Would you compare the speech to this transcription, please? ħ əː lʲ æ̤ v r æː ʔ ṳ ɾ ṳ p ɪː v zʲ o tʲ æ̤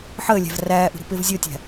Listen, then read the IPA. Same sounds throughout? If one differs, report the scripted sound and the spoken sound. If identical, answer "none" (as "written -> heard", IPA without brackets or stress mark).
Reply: none